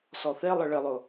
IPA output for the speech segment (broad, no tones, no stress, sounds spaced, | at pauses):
s ɔ θ e lˠ ə ɭ ɪ lˠ ʊ